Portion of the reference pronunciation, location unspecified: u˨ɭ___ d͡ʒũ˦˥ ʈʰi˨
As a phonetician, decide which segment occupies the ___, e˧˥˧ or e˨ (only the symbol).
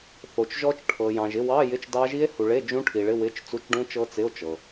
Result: e˧˥˧